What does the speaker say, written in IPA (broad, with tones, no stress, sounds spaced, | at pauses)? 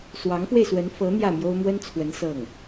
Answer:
s w ɑ˧˥ ŋ f w e˧ ɪ̯ s w ə˧˥ n f ɤ˧˥ n̪ j ä˥˩ m j o˥ ʊ̯ m w ə˥ n t͡sʰ w ə˧˥ n s ɤ˥˩ ŋ